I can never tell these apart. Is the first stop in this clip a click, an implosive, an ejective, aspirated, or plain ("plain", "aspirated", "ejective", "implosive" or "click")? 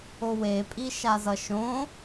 ejective